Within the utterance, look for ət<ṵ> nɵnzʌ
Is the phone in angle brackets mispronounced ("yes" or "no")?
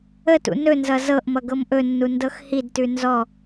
no